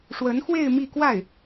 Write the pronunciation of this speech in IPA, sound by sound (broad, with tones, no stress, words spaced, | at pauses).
ʂwə˧˥nxwe˥˧ɪ̯ mi˥˧kwa˥˩ɪ̯